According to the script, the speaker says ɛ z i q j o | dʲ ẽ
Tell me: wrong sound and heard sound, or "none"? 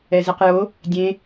none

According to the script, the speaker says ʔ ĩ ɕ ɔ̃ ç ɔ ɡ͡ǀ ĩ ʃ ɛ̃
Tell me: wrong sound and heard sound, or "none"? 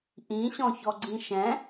none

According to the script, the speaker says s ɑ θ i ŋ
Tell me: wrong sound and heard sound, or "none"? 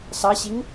θ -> ɕ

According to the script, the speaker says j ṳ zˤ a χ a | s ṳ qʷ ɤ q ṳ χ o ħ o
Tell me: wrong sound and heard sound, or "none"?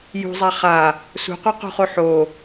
none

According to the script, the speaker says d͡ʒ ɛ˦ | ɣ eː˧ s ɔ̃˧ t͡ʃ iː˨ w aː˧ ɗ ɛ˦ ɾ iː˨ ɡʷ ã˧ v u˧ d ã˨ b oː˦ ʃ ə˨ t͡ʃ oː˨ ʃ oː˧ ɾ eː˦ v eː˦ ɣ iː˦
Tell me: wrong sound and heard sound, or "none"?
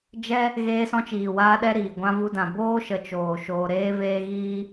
none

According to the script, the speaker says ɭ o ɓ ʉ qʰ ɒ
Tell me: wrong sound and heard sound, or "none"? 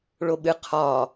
ʉ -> ɨ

